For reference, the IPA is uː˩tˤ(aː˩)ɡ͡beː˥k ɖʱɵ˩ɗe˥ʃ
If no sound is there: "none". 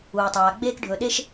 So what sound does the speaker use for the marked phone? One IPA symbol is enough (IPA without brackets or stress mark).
aː˩